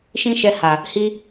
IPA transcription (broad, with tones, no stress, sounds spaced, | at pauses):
ʃ ĩ˦ ʃ ɛ˧ h a˨ | h i˦